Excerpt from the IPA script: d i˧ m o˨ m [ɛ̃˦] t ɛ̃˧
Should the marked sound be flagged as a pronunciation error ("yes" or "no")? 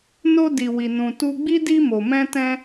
yes